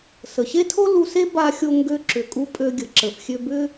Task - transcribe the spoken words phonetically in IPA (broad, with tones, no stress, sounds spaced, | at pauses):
s ə˩ ɕ e˥ tʰ o˥ l u˧ s e˥ b a˧ xʲ o˧ ŋ ɡ ø˧ ǁ ʏ˩ kʼ u˧ pʼ ø˧ ɡʲ ə˩ ǁ ə˩ f xʲ ø˧ b ʏ˥